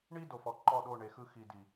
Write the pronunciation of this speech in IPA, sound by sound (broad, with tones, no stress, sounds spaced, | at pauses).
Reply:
ɳ i˦ d o˨ f ɔ˨ ǃ ɔ˦˨ ɗ o˦˨ ɳ e˨ x ɯ˦ x i˨ d i˨